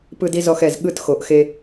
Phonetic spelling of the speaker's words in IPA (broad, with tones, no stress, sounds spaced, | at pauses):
p ɯ˥ d i˥ z ɔ˥˧ x ɛ˧˩ z ɠ ɯ˥˧ t x o˩˧ ʔ x e˧